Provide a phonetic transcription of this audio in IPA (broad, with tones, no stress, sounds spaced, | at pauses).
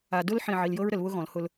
a˨ d ʊ˦ l ħ ĩ˦˨ ʕ i˨ l j ɤ˦ ɹ ɾ ə˨ l β ʊ˦ ɣ ɔ̃˨ l h ʊ˦ l